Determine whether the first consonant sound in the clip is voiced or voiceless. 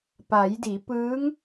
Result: voiceless